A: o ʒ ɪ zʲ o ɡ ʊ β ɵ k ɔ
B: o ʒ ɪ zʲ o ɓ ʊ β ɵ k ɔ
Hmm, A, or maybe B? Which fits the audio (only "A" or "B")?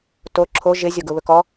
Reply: A